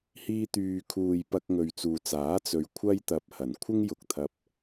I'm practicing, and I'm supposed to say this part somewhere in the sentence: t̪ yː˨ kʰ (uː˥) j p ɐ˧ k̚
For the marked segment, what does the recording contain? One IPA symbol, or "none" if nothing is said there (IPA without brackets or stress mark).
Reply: uː˨